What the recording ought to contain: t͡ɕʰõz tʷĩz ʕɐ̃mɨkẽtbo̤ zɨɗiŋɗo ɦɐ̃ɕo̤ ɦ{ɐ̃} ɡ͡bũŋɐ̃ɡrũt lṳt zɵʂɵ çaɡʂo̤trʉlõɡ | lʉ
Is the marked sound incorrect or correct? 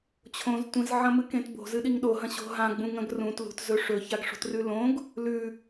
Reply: incorrect